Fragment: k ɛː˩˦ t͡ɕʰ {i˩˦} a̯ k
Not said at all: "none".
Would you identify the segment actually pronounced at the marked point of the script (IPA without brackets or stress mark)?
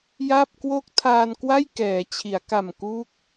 i˩˦